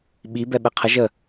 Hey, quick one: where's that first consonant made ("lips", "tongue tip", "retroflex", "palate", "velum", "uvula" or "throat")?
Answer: lips